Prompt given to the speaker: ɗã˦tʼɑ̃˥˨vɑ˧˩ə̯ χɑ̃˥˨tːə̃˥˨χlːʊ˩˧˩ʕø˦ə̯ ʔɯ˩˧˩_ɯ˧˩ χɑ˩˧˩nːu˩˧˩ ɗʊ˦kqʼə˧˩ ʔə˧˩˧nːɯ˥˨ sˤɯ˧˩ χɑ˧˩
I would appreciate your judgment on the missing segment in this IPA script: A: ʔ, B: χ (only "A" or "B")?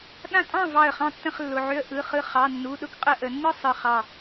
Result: B